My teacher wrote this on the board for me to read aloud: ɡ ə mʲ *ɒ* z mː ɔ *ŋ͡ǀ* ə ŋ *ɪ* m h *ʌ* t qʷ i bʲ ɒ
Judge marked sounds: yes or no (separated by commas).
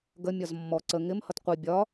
yes, no, yes, yes